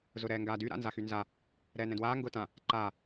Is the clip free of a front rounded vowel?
no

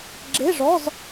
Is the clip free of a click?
no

